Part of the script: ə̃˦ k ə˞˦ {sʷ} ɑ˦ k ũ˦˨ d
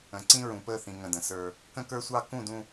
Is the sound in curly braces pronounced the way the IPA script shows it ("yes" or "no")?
yes